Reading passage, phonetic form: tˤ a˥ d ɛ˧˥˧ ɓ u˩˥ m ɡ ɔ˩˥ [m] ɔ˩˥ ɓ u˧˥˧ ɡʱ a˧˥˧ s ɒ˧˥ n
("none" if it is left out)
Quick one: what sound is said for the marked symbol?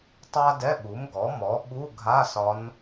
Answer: m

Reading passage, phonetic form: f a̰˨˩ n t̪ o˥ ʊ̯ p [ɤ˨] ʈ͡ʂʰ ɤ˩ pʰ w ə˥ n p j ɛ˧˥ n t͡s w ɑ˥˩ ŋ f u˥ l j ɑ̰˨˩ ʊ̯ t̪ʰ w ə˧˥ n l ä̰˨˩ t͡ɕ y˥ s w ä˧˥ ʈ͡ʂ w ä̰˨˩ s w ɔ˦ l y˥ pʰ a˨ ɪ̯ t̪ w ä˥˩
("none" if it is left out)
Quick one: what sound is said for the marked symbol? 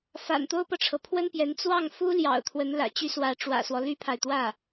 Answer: ɤ˨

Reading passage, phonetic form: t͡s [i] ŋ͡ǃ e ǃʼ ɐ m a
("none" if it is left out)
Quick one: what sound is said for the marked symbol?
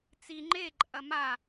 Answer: i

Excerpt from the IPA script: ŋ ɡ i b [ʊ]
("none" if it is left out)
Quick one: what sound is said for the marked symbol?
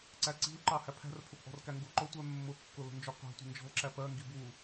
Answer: u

